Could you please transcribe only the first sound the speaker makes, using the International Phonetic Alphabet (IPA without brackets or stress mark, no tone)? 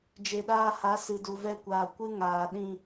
d͡ʒ